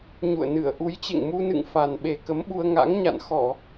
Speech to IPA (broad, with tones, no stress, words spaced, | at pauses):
ɲṵ˧˨ə̯nɨ˧˩ə̯ ʔu˨˦jt͡ɕḛ˧˨ŋmu˧nɨ̰˧˨ŋ fa˨˩nɓe˨˩kə˨˦mɓu˧ə̯ ŋa̰˧˥ŋɲa̰˧˨n xɔ˧˩˨